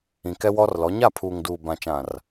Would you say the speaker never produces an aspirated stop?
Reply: no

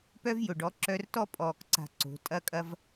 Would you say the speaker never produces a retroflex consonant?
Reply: no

